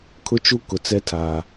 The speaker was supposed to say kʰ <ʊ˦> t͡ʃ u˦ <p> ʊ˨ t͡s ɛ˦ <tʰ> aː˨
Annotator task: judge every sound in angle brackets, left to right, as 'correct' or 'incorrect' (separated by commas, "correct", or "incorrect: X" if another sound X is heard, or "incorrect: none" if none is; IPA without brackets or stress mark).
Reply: correct, incorrect: k, correct